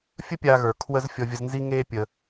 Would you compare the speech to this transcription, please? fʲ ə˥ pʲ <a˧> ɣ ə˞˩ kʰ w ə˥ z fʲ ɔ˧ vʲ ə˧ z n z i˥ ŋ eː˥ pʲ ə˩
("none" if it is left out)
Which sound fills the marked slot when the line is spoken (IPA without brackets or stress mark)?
a˧